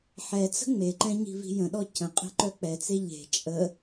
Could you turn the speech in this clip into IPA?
ħɛt͡sə̤ ŋ͡meǃɛ̃ ɲi̤vi̤jə̃ɗɔ cə̃ qʼe̤ǃœk͡pɛt͡se ʎe̤ t͡ʃʼə

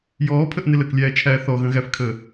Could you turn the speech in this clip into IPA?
jɔːpʰəʔ nɪləklʲæːt͡ʃʰæː θɔɣə̃ɣæfkʰəː

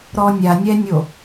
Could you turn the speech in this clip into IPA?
ɾɔnʲanʲɛnʲo

